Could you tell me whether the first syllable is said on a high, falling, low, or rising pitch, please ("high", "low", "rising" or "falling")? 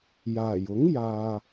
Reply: low